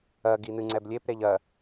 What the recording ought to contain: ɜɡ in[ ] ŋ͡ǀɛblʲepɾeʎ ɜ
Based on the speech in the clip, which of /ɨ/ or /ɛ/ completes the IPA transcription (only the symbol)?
ɨ